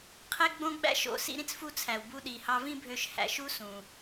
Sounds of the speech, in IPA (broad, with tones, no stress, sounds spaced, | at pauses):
qʰ e˥ ɡ͡b õ˥ ɡ͡b æ̰˥ ʃ o̰˧ s ḭ˧ ɾ ĩ˥ t͡s f u˧ t͡sʰ æ˩ w b u˧ ɗ i˩ h ɑ˧ v ĩ˥ bʱ ø˧ ʃ h æ̰˧ ʃ u˥ s ũ˩